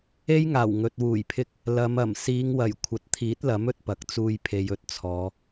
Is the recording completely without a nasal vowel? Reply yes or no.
yes